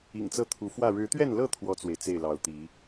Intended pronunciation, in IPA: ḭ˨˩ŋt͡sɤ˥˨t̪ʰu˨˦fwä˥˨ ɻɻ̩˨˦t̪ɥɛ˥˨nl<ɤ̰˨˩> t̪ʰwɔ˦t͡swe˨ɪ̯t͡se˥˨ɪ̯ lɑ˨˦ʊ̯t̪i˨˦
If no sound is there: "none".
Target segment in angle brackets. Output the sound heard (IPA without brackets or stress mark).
ɤ˥˨